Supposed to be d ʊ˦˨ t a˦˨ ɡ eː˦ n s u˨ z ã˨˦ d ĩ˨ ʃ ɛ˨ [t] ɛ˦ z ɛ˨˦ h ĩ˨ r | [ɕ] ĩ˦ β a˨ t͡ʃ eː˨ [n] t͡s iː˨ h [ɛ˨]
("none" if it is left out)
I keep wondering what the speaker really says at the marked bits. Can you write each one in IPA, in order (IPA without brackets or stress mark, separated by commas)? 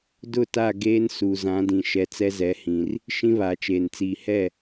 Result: t͡s, ʃ, n, ɛ˦˨